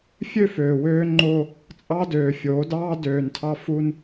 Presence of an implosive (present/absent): absent